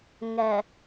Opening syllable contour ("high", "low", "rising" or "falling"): low